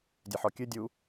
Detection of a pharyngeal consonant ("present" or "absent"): present